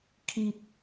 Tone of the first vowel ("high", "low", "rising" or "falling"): high